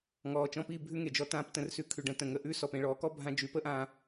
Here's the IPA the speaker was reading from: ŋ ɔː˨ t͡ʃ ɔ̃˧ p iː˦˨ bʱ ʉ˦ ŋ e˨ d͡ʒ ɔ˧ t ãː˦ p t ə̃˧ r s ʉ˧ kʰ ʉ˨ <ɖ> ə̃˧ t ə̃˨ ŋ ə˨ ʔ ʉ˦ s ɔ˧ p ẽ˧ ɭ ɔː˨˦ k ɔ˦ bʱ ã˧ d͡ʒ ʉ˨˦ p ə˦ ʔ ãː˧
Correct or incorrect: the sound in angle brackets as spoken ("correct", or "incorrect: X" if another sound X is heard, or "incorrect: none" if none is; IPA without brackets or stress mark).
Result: correct